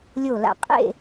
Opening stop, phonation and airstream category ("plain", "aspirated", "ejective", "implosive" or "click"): ejective